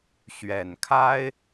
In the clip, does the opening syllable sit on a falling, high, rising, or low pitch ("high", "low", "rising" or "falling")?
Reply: low